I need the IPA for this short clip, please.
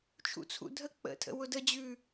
t͡ʃʰ ṵ t͡sʰ ṵ dʱ ə k͡p ə̰ tʰ ə̰ w ʊ d ə d͡ʑ ʉ

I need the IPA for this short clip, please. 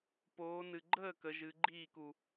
p oː˩˧ n ɨ˩ ɡ͡ǃ əː˥˩ k ə˩˧ ʒ ɨ˩˧ ɡ͡ǃ iː˥˩ k u˩

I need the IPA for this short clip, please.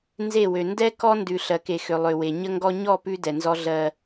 n z e˦˨ w ø˨ n d ɛ˦ k ɔ˦ n d ʉ˨ ɬ ɜ˨ k e˨ x ø˨ lˠ ø˨ w e˨ ɲ ə˦ ŋ ɡ ɔ˦ ɲ ɔ˦˨ p ʉ˦ d ɛ˨ n z ɔ˦ ɮ ɜ˦

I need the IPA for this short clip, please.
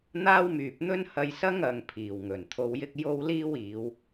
n̪ aː˥ w m yː˨ p̚ n̪ ɵ˥ n h ɐ˧ j s ɐ˥ ŋ ɐ˨ ŋ pʰ iː˨˩ w ŋ ɵ˨˩ n t̪ʰ o˧ w j ɪ˥ k̚ j o˥ w l iː˥ w iː˨˧ w

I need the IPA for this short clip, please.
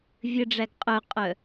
vʲ ɘ ɖ͡ʐ æ ɡ qʼ œ qʼ œ

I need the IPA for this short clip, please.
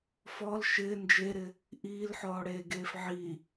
f ɔ l ʃ ɪː n d͡ʒ e ɾ ɪ | ʔ iː l ħ ɔː ɽ eː ɡ eː f ʕ i

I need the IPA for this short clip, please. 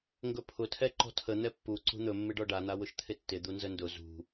ŋ ɡ ɵ pʰ ʊ tʰ ɛ ǃ ɔ̤ tʰ ə n̪ ɛ pː u ǀ ṳ n̪ ɵ mː ɪ ɖ ɔ ɖ a n̪ a w ʊ ʃ t̪ʰ ɪ tː ɪ d̪ u n z ə n d ʊ z ṳ

